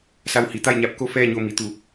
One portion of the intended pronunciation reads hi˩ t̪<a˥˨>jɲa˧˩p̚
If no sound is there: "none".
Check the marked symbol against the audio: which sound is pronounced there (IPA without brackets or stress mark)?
a˥˨